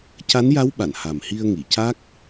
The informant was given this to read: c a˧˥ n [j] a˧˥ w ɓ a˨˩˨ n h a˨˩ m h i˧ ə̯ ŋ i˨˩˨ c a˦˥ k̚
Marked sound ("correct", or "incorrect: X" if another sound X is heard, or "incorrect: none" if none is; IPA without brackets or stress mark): correct